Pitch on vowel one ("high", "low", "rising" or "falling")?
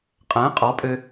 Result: rising